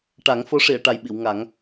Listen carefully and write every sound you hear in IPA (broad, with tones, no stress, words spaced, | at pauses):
ʈa˨˩˦ŋfo˧˥ʂi˨˩˨ə̯ ʈa˨˩jɓi˨˩˨wŋa˨˩˦ŋ